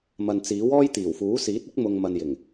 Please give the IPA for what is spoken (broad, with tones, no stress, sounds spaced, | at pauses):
m ɐ˨ n t͡s iː˨˥ w ɔː˥ j t̪ iː˨˩ w f uː˨˥ s iː˨˥ t̚ ɪ˥ k̚ m ʊ˨ ŋ m ɐ˨ n j ɪ˨˩ ŋ